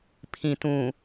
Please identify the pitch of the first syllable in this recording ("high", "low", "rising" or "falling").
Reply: low